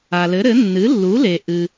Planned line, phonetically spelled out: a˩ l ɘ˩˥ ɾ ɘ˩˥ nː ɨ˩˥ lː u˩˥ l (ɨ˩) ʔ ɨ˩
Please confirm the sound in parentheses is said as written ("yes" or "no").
no